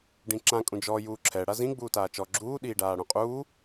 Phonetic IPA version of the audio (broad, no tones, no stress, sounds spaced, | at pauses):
ɖ ĩ ǁ ã kʼ ũ d͡ʒ ɔ j uː ǁʰ ɛ ɽ a z ĩ ɡ͡b uː t aː t͡ʃ ɔ ɡ͡ǁ uː ɗ iː ɖ aː ɽ ũ qʼ uː